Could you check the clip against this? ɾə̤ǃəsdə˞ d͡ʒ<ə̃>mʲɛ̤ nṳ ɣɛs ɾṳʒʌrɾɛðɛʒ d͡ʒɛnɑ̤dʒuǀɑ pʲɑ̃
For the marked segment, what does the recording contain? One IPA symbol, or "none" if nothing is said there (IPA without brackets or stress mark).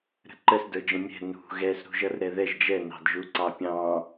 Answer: ə̃